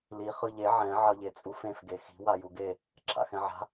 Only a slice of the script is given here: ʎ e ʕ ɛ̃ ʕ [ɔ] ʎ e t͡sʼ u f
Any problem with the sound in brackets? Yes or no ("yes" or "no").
yes